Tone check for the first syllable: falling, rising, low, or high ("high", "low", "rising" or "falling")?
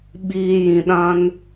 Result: low